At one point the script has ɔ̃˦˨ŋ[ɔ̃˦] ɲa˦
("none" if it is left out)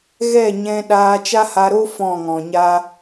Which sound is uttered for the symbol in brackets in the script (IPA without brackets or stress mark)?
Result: ɔ̃˨